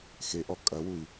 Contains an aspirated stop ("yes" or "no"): no